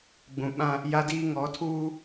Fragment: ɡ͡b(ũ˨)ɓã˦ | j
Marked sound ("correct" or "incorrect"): correct